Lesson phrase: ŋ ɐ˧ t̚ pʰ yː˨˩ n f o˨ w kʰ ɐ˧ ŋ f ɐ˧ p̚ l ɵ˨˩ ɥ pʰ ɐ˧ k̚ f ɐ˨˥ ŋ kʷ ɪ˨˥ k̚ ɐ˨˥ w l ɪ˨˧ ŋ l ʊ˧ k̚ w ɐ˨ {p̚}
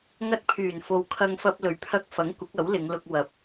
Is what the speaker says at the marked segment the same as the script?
yes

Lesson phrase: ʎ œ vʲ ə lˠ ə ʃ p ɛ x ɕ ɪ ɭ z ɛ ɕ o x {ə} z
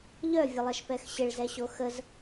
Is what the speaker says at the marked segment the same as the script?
yes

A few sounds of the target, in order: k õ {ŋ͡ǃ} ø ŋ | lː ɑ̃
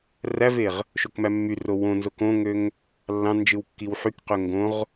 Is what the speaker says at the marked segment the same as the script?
no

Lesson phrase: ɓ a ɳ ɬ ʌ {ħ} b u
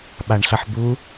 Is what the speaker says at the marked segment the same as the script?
yes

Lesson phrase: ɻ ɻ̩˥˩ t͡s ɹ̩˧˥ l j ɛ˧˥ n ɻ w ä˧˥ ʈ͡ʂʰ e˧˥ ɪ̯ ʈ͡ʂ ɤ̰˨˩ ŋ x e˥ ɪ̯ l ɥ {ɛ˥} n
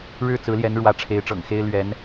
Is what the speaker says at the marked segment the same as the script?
no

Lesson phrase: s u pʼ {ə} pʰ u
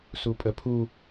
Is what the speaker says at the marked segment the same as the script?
yes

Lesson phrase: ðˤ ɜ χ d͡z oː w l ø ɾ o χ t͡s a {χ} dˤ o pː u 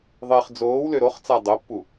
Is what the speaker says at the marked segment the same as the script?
no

